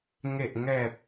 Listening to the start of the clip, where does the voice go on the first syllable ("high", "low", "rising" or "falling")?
low